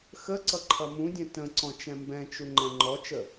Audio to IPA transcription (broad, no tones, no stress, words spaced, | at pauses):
xəǀʌ ǃʰʌmũdʲɛ̃ tə̃ǀɔ̃ t͡ʃɛ̃mbɛ̃t͡ʃu ŋ͡ǃɛ̃ŋ͡ǃɔt͡ʃə